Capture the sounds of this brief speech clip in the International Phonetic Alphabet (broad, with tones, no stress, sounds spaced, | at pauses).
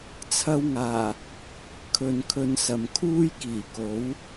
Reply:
t͡sʰ ɐ˧ w ŋ aː˨˩ | kʰ ɵ˨ n kʰ ɵ˧ n s ɐ˨ m kʰ uː˥ j k iː˨˩ k o˨˥ w